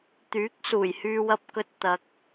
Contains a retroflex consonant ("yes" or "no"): no